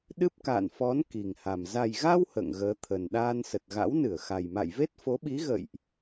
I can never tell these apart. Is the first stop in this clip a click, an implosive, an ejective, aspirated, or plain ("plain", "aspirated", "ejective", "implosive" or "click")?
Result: implosive